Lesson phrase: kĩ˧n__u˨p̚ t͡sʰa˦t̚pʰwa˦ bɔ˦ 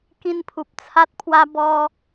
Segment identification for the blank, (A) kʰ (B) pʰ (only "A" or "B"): B